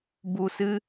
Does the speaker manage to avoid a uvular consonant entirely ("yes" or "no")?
yes